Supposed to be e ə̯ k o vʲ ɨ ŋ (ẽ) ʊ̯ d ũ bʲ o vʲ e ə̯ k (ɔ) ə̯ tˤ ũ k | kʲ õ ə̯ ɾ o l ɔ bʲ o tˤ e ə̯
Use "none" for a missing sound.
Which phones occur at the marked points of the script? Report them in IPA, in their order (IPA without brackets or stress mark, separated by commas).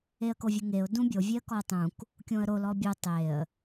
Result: e, ɔ